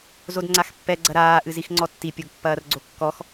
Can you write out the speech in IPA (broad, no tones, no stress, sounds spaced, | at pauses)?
z o d ŋ͡ǀ a x pː ɛ ɡ͡ǀ ɐ ɾ aː ʔ ɨ z i x ŋ͡ǀ ɔ tː i pʲ o ɡ pː ɐː r ɡ͡ǀ o kː ɔ x